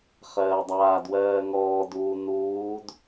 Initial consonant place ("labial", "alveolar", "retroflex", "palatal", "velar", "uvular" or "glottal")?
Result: uvular